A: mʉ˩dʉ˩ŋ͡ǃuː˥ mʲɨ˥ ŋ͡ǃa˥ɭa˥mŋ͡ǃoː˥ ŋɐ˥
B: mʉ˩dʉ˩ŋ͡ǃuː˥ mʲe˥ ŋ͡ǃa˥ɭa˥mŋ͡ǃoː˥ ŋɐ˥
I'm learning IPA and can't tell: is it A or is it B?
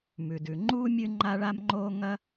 A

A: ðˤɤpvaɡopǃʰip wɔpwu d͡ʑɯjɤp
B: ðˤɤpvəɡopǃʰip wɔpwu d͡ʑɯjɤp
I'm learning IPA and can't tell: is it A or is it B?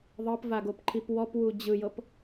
A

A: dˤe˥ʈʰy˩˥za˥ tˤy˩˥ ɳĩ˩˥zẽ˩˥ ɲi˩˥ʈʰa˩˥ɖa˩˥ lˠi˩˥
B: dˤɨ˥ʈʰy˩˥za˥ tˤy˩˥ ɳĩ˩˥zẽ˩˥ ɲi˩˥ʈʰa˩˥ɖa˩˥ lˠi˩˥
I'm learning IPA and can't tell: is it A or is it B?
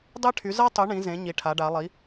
A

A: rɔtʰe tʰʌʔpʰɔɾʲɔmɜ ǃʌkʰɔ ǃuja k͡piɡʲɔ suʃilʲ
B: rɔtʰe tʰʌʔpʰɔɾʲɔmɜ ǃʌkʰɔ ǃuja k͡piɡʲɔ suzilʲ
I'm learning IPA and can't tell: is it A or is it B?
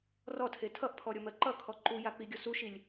A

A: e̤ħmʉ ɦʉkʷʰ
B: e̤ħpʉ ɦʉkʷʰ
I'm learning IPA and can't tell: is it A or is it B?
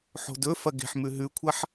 A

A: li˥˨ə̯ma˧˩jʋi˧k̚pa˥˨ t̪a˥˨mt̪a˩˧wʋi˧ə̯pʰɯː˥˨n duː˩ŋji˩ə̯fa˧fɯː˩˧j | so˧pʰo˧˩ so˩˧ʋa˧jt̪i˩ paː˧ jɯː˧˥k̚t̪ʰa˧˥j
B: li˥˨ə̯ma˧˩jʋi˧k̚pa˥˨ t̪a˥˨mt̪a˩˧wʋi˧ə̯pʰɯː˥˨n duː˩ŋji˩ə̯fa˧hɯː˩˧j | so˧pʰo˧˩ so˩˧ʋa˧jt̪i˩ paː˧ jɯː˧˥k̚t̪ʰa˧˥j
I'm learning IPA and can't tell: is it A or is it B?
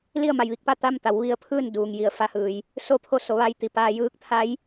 B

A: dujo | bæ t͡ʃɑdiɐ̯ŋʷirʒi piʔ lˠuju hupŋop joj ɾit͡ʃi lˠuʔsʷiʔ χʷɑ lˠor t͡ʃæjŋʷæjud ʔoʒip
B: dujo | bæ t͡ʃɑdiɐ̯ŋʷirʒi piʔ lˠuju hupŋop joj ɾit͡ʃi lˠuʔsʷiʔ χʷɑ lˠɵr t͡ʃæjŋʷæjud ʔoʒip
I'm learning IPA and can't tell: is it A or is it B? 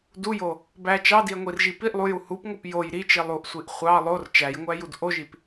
A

